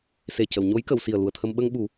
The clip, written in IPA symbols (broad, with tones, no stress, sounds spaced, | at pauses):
s e˨˩ c ə˨˩˨ w ɲ o˧˥ j k ə˨˩˨ w s i˨˩ ə̯ l u˨˩ ə̯ t̪ʰ ə˧ m ɓ ə˧ ŋ ɓ u˨˩˦